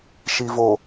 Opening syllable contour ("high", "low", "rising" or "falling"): low